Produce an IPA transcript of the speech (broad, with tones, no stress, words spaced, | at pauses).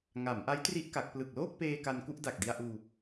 ŋa˩˦mʔa˦˥jtri˦˥ʔ ka˦˥k̚ plɯ˨˩k̚loː˥˩k̚peː˧ ka˧n ku˥˩ʔda˨˩k̚di˧a̯ʔuː˧